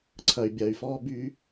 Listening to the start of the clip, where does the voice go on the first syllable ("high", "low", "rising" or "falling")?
low